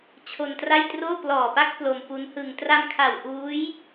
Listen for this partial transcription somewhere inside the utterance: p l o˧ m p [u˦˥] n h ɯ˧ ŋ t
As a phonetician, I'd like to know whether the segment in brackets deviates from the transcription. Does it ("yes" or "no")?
no